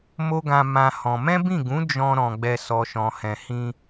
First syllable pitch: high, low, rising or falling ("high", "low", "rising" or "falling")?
high